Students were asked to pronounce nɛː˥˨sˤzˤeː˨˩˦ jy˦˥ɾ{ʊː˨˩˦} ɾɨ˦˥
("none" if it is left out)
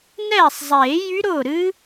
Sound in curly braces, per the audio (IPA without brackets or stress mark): ʊː˥˨